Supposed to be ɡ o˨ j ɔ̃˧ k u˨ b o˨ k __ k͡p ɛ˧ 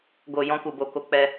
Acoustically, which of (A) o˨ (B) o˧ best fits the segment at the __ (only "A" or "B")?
B